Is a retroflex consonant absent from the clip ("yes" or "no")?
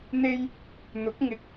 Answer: yes